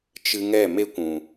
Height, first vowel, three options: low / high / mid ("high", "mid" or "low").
high